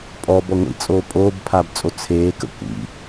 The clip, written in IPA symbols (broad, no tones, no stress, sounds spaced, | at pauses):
pʼ ɔ b ɔ ŋʷ ḭ t͡sʼ oː pʼ oː b pʰ aː b t͡sʼ o t͡sʰ eː k ə̰ kʷ ḭ